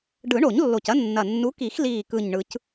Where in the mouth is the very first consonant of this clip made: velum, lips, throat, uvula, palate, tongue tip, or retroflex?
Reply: retroflex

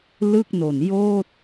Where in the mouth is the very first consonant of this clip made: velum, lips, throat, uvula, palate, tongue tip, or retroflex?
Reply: tongue tip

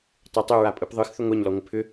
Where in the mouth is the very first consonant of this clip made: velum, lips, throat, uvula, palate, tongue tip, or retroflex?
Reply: tongue tip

